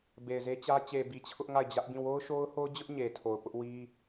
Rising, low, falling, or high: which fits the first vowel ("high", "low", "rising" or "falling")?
low